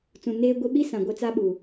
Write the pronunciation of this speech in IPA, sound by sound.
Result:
t͡s ũ˨ n eː˦ ɡʷ i˦ ɓ i˦ s ã˨ ɡʷ e˦ t͡s a˦ ɓ u˨

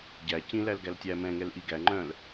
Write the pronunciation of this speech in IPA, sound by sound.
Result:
ɟ æ c ĩ l æ l ɡ æ l tʲ æ m ɛ̃ ŋ ɛ l ʔ i ɡ æ ŋ͡ǃ œ̃ l

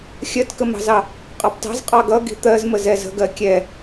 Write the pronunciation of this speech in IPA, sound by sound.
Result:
xʲ ɜ t k ə m ɑ̤ z ɑ | qʼ ɑ p t ɑ̤ z qʼ ɑ ɡ ʌ ɡ i̤ t̪ ɜ z m ə z ɛ z ə̤ ɡ ɜ kʲ ɛ

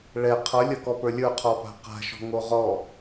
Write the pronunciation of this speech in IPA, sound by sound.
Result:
ɭ ɛ qʰ ʌ lʲ ʌ k ɔ p ə˞ lʲ ə˞ qʰ ɔ p a̤ q a̤ ʃ ɔ̤ ŋ o ʁ ɔ

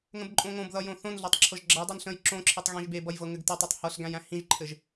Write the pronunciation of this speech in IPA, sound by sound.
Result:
ŋ ə̃ b ǃʼ õ ŋ õ b ð ʌ j õ θ õ n ɮ ɤ tˤ ǁʰ ɤ ʒ ɡ͡ǁ ʌ j dˤ æ n ɬ ə̃ j ǁ õ ǁʰ i tˤ ɣ ẽ ʒ b e b ʌ j v ɤ ŋ ɘ ɡ t ɘ tˤ o tˤ h ɤ ɬ ɡ æ̃ j æ̃ h ĩ ʒ ǃʰ ɘ ʒ

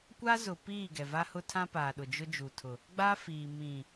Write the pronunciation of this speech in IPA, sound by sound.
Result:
kʷ a˦ z ʊ˨ p iː˦˨ ɡ ɛ˨ v a˦ h ʊ˦ tʰ ã˦ p aː˨ ɗ ʊ˨ d͡ʒ ʊ˦ d͡ʒ u˨ tʰ ʊ˨ | ɡ͡b a˦ f iː˨ m ĩ˨

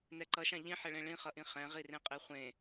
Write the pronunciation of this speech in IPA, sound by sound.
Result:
n ɛ ǃ ʌ ʃ ã ʎ ĩ ħ ɛ ɭ ẽ ɭ ĩ χ ʌ ʔ ĩ χ ɛ̃ ʁ i r ẽ qʼ e χʷ ẽ

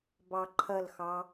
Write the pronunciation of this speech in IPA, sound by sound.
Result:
b ɑ ǃʰ ɐ l x ɑ

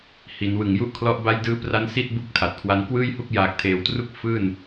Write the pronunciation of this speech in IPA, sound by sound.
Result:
h i˩˦ n w ɯ˨˩ ŋ j u˥˩ ʔ kʰ l ɔ˦˥ ʔ b a˦˥ j d ɯː˦˥ p r a˦˥ n s i˥˩ t̚ b u˦˥ k̚ tʰ a˨˩ t̚ kʰ w a˦˥ n k w ɯː˥˩ j h u˥˩ k̚ j aː˨˩ k̚ tʰ eː˩˦ w t r u˦˥ k̚ f ɯː˥˩ n

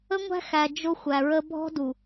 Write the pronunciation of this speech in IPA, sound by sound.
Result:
ə˦ ŋʷ æ̤˦ x æ˨ d͡ʒ ʊ˦ xʷ æ˨ ɹ ə˦ bʱ ɔ̤˦ d u˨

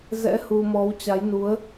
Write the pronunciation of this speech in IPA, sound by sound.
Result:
z ɛ̰˧˥ h u˧ m ɔ˨˦ w t͡ɕ a˨˦ j n u˨˦ ə̯

